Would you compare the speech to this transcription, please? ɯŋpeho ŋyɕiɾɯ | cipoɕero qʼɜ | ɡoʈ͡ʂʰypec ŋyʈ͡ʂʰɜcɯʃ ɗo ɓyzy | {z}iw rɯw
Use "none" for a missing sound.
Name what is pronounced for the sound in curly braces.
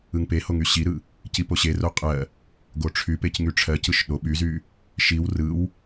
ʃ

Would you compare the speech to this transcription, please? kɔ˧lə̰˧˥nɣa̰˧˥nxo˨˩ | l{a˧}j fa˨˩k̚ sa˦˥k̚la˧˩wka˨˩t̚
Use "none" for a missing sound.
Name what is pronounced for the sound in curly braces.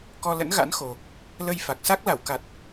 ə˧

